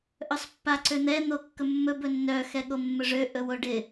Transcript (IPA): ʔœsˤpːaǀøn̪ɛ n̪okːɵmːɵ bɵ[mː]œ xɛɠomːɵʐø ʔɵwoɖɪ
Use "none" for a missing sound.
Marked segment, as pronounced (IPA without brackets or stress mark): nː